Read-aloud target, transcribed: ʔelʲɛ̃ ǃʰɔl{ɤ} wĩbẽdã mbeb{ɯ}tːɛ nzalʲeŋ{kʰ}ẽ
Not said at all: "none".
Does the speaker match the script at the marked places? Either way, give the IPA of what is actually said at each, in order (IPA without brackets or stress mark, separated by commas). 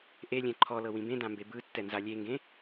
ɤ, ɯ, ɡ